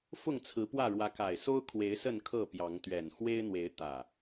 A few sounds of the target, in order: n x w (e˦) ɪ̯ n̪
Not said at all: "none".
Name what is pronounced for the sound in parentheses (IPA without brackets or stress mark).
e˦